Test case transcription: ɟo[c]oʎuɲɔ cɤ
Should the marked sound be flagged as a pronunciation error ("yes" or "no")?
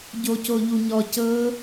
no